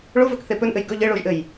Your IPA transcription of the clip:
ɭ o v ɵ k θ e p ɵ n ʔ ɘ j ɡ ɵ ʎ ɘ ɭ o ʒ ʔ ɘ j

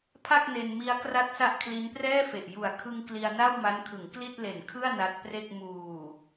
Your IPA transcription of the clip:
pʰ a˥˩ k̚ n e˧ n m i˦˥ a̯ k r a˥˩ t̚ s a˥˩ ʔ kʰ l i˦˥ n p r ɛː˥˩ f e˨˩ ʔ j u˨˩ a̯ kʰ ɯ˧ ŋ k l i˧ a̯ n a˥˩ w m a˦˥ n kʰ ɯ˩˦ ŋ k l i˥˩ t̚ l e˨˩ n kʰ ɯ˥˩ a̯ n a˦˥ t̚ p r e˥˩ k̚ m uː˨˩

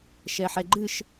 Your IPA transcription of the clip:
ʃ ɛ ħ ɛ ɡ͡ǃ ɨ ʃ

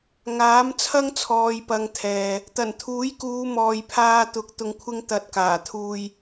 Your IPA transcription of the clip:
ŋ aː˨˥ m t͡sʰ ɐ˥ ŋ t͡sʰ ɔː˨ j p ɐ˨ ŋ t̪ʰ ɛː˨ | t̪ ɐ˨˩ n t̪ʰ uː˨˥ j k uː˨˧ m ɔː˨ j pʰ aː˧ t̪ ʊ˨˥ k̚ t̪ ʊ˧ ŋ kʷʰ ɪ˥ ŋ t̪ ɐ˧ t̚ k aː˨˩ t̪ʰ uː˧ j

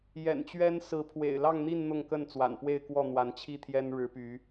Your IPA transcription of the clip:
j ɛ̰˨˩ n t͡ɕ ɥ ɛ˦ n s ɹ̩˨˦ pʰ w ḛ˨˩ ɪ̯ l ɑ˥˨ ŋ n̪ i˥˨ n n̪ ʊ˥˨ ŋ k ə˥˨ n t͡s w a̰˨˩ n p w e˥˨ ɪ̯ k w ɔ˥˨ n̪ w a˨˦ n t͡ɕʰ i˥˨ t̪ʰ j ɛ˦ n ɻ ɻ̩˨˦ p y˨˦

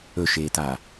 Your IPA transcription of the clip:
ɵ ʃ eː t a

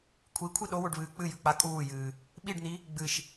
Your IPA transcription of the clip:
kʷʰ i kʷʰ i ɗ o w o ɖ β ɨː k͡p ɨ j ʉ k͡p a kʼ uː j ɨː | ɓ i ɖ n̪ i | ɡ͡b ɨ ʃ

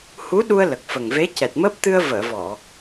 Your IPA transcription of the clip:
h u˧˥ ɗ u˧ ə̯ l ə˨˩ k̚ f ə˨˩ ŋ v e˧˥ c ɛ˨˩ t̚ m əː˦˥ p̚ t̪ ɨ˧ ə̯ v əː˨˩˨ v ɔ˨˩˨

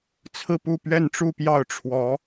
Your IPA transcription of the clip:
t͡sʰ ɹ̩˥˧ p u˥˧ p ɥ ɛ˥˧ n ʈ͡ʂ u˥˧ p j ɑ˥˩ ʊ̯ ʈ͡ʂʰ w ɔ˧˥

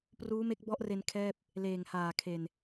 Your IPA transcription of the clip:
p r uː˦˥ m e˦˥ k̚ b ɔ˦˥ ʔ r e˧ n kʰ ɛː˥˩ p̚ | l eː˨˩ ŋ h aː˨˩ kʰ e˨˩ n

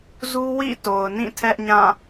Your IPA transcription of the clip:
z u˦ w ḭ˦˨ t o˨ ʊ̯ n ĩ˦˨ tʰ ɛ˦ ʔ ɲ ã˦˨

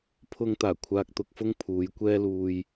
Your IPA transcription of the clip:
pʰ ʊ˧ ŋ t̪ aː˨˩ kʷʰ aː˧ k̚ t̪ ʊ˧ k̚ f ʊ˥ ŋ pʰ uː˨˧ j kʷ ɛː˥ l uː˧ j

